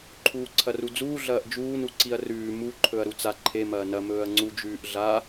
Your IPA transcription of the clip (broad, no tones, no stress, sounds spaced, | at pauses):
ǃʰ uː ǀʰ ɐ r u d͡z uː ɮ ɐː ʔ d͡ʒ uː n u ǀ i ɐ̯ r ʉː m u ǃʰ ɵ ɐ̯ ɾ u t͡s a ǃʰ e m ɐː n ɐ m ɵː ɐ̯ ŋ͡ǀ u d͡ʒ ʉː ʔ ɮ a